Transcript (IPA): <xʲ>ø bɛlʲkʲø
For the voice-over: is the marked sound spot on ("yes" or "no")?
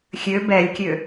yes